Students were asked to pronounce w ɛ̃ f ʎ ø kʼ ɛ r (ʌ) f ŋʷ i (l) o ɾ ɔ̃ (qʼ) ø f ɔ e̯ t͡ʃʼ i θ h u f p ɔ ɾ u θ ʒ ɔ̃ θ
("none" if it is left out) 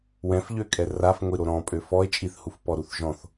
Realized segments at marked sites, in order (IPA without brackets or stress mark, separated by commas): a, ɾ, pʼ